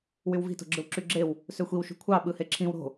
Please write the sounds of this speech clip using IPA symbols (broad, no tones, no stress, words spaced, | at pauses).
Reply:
wywvi̤ to̤ɡ͡ǁɯwǁyɡ͡ǁew | søxʷiw ʃṳkʷʰɑ ɓɯheǁʰĩw ɾo̤